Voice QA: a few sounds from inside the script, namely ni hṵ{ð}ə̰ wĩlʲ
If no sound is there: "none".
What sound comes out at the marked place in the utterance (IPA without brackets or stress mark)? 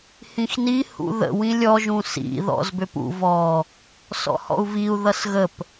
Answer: ð